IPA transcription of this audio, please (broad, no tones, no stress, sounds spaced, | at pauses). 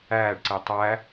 æː ɖ ǀ i tˤ æ